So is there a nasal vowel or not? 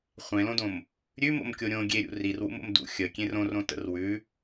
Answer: yes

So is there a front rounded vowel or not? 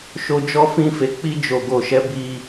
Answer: no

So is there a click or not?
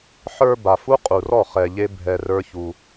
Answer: no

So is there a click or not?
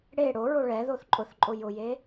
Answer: yes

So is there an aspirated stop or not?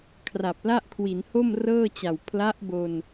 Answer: yes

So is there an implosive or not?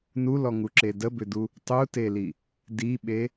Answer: yes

